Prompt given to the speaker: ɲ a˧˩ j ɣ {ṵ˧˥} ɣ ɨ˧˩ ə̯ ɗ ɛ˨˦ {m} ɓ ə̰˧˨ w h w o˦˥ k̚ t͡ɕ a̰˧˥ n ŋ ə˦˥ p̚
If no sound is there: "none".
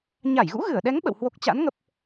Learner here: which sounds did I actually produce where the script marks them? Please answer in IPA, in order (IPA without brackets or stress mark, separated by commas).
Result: ṵ˧˥, ŋ